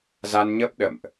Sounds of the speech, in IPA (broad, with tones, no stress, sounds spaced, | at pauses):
z a˧ n ɲ ə˦˥ p̚ ɗ ə̰˧˨ m ʔ